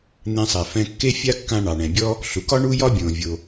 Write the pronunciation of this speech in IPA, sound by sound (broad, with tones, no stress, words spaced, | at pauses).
n̪ẽ˧sˤɛ˩fɛ̃˧ kːe˥fʲa˥ kːã˧ ɳɑ˩ɳɛ̃˩bʲɔ˥ | ɬu˩kɒ˥ ɳu˥jɒ˥ bʲõ˩vʲo˩